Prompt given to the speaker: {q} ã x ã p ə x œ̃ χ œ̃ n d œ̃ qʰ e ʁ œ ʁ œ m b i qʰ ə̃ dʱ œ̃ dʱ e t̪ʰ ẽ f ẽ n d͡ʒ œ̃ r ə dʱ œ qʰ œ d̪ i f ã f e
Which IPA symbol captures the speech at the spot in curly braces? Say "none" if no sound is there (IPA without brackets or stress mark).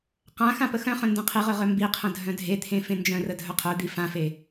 q